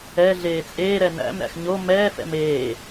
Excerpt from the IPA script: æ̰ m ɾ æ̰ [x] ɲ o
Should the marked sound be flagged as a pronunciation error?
no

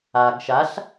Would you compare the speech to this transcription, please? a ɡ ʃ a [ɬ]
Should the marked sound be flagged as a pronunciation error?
no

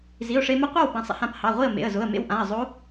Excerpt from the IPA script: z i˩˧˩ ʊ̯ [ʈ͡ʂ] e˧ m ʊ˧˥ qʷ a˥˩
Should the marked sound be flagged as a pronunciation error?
yes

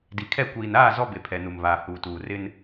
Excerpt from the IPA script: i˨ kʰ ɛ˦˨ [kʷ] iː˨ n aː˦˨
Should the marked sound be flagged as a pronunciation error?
no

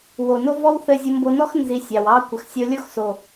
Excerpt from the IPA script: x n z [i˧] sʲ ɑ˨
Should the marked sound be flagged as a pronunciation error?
no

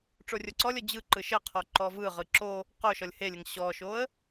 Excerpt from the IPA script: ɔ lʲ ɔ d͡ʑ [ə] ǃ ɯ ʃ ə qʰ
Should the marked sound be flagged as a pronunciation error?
yes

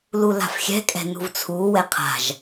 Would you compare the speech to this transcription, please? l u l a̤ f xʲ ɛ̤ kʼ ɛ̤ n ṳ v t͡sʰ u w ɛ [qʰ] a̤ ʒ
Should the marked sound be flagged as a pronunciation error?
no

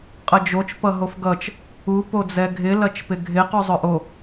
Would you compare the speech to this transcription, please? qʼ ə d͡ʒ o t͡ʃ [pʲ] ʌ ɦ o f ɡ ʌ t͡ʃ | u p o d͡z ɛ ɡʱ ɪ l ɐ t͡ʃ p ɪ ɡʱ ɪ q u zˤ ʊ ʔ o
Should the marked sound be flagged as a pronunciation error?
yes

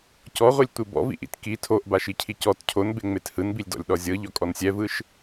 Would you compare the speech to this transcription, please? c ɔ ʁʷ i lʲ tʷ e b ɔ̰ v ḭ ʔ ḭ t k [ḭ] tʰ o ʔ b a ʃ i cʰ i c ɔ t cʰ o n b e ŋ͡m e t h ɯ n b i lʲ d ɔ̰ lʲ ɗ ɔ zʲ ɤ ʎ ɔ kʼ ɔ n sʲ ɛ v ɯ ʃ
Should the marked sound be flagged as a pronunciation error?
yes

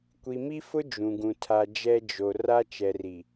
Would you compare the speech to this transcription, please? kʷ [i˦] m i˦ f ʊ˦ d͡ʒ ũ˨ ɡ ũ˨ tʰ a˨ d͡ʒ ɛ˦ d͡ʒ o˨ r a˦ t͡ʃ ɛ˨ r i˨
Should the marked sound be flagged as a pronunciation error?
yes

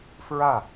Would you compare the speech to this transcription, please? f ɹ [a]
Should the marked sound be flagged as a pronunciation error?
no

